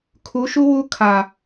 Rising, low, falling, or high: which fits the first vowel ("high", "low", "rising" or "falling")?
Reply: rising